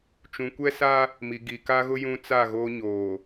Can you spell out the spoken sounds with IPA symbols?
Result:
t͡ʃũ˨kʷɛ˦sa˦ | mi˨ɡi˨ka˦ɣʊ˦ jũ˦t͡sa˦˨ ɣoː˦ɲoː˨

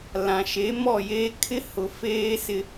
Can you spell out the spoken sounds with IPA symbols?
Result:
lã˨ʃe˨˦mɔ˦˨jeː˦ kʰɪ˦hʊ˨feː˦sɪ˦

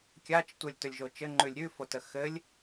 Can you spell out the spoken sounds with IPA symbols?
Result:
kʲat͡ʃ tʷəlʲtɵlʲʒo t͡ʃɘŋ͡ǃʉlʲ ɾʲʉfotə xɘlʲ

